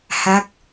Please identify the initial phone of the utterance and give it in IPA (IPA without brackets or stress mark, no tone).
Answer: h